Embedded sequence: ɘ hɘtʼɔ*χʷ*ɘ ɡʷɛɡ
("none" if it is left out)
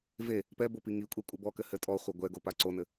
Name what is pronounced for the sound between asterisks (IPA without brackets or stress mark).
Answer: χʷ